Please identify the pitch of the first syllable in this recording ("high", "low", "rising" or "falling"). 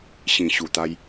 low